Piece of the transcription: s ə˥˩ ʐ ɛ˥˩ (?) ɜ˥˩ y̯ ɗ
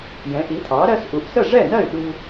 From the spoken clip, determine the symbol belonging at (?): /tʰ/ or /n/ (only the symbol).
n